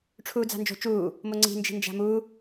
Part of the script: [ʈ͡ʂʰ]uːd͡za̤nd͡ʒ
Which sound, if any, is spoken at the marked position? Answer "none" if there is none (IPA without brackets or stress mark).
ʈ͡ʂʰ